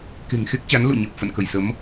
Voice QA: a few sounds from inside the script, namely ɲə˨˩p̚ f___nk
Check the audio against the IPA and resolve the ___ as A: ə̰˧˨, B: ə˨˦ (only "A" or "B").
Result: A